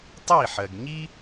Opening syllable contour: falling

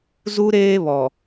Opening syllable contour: high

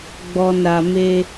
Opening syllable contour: low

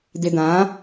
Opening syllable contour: low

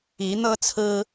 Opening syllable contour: rising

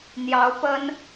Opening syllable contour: rising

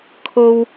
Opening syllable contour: high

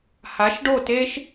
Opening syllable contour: rising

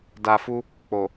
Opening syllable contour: low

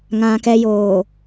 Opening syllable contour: low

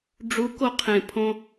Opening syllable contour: rising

